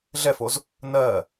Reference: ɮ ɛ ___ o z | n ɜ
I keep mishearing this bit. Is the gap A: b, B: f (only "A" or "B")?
B